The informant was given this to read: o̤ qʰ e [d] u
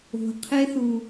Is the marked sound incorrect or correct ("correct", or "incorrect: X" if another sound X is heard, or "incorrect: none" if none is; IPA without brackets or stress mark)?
incorrect: θ